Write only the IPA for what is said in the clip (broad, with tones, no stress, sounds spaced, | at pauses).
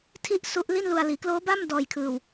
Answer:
tʰ i˥˩ ʔ s u˦˥ ʔ l i˥˩ n l u˧ a̯ l iː˩˦ k l oː˦˥ b a˥˩ m d ɔː˧ j kʰ ɯː˧ w